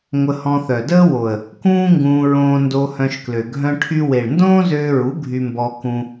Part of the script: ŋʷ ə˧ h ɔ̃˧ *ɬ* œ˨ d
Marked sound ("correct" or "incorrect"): incorrect